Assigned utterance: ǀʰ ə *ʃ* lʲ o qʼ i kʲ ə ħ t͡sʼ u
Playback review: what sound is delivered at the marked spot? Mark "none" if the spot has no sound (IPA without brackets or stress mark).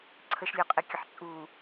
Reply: ʃ